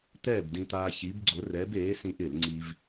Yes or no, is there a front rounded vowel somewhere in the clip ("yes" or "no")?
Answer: no